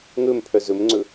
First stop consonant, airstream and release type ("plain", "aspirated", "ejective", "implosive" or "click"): aspirated